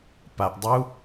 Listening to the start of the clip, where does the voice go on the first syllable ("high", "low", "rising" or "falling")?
low